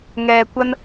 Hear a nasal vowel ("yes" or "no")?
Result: no